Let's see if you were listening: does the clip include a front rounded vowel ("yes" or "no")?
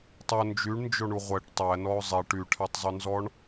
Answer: yes